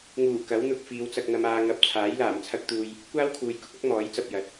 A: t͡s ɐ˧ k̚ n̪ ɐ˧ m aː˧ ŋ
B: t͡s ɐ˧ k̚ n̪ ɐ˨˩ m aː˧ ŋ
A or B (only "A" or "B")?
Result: A